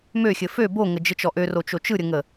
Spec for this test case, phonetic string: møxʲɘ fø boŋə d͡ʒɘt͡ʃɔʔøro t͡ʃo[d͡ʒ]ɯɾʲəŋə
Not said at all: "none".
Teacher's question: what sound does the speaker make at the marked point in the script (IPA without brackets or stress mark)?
t͡ʃ